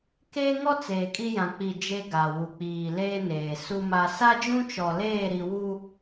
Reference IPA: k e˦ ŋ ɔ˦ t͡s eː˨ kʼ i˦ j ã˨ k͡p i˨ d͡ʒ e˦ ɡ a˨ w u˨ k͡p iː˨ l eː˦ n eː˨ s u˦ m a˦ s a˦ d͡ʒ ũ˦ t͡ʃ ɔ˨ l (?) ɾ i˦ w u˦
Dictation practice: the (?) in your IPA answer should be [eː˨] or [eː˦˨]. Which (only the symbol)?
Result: eː˦˨